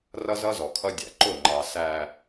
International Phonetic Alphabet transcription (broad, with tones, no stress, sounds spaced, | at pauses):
r ʌ˦ z ʌ˦ z ɔ˨ kʰ ʌ˦ dʲ æ̰˨ ǃ ʊ˦˨ ŋ͡ǃ ɑ˨ s æ˨